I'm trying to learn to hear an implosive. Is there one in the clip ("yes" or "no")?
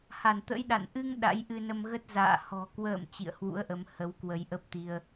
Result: yes